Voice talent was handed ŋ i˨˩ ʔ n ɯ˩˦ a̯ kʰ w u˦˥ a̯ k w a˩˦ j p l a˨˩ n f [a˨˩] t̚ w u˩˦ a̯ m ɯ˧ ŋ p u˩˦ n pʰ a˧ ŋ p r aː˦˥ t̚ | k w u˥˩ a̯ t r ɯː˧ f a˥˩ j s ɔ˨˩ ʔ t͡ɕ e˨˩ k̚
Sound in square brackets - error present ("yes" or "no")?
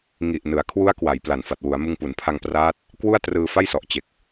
no